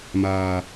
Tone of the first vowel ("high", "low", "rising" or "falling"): high